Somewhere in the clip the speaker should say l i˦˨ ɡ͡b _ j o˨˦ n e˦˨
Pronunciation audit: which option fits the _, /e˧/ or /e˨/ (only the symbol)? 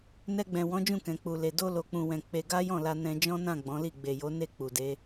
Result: e˨